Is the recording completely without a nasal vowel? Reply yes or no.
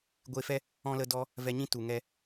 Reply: no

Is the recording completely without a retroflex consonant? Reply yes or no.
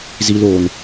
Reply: yes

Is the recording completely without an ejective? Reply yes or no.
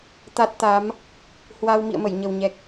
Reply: yes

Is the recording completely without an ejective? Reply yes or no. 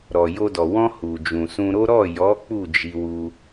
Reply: yes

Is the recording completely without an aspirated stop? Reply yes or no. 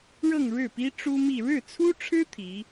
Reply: no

